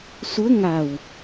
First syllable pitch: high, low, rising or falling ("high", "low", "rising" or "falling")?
rising